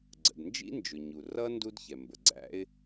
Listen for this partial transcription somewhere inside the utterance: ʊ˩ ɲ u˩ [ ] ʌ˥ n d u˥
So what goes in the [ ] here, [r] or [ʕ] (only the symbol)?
r